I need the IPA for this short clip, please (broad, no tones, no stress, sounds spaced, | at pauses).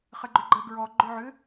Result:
χ ə ɡ͡ǃ ʏ ɡ͡ǃ ə ɡ ɹ ɔ ɡ͡ǃ ʏ ʕ ʏ